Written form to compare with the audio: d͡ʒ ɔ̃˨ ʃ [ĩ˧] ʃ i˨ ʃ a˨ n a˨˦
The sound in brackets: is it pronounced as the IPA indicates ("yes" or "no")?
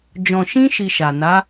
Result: yes